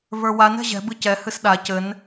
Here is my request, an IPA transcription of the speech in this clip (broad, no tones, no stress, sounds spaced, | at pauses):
v ə˞ w a n ɛ̤ ʑ ɛ̤ b ɨ c ɛ h ɨ s ɗ a c ɘ n